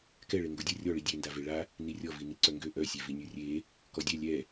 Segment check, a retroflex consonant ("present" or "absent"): present